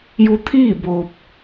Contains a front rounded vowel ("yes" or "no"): no